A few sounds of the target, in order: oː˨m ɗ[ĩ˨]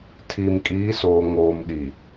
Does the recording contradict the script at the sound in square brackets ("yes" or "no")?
yes